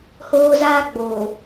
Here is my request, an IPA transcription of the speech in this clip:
hoː˦zaː˦ɡ͡boː˨

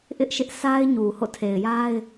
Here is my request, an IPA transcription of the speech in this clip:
ʔɪ˦ʔʃɪ˦ʔsa˦ɪ̯ɲu˨ ho̰˦˨tʰe˨ɪ̯ja˦ɪ̯

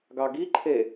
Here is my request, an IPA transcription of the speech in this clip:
ɡɑɡiǃʰe

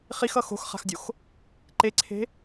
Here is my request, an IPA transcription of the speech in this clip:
χixʌ xo̤xχa̤xdʲox | ǃeǀʰe̤

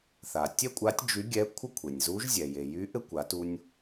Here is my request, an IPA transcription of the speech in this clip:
θa˩tʲɛ˥kʷʼa˧˥tʲ d͡ʒy˧˥ɡʲɛ˧˥ kʷʰə˥kʷʰe˩nʲzu˧˥ʒ zʲɛ˩je˩ jy˧˥ ʔɘ˥kʷa˩˧tu˧nʲ

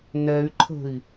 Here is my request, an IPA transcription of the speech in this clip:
nɛy̯ǃʰə̤i̯

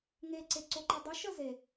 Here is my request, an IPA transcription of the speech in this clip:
ŋeǀeǀoǃɛ dˤɨʃə ze

